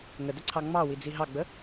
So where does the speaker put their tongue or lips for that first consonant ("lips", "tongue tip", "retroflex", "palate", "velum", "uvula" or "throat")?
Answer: velum